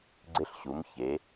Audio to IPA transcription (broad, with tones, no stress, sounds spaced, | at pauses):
ɡ͡ǀ ɪ˧ ɬ ɕ u˩˧ m ç e˩˧